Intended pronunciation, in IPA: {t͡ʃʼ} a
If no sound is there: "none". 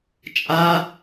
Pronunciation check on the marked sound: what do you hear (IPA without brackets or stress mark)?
t͡ʃʼ